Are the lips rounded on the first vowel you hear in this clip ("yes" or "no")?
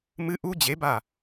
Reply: no